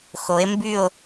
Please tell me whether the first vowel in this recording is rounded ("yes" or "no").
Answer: yes